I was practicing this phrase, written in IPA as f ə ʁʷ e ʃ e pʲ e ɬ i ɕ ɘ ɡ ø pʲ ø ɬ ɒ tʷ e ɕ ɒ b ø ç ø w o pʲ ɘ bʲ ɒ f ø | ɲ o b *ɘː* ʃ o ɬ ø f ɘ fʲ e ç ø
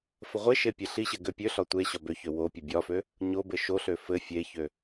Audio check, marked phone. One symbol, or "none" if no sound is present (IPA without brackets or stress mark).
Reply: ɘ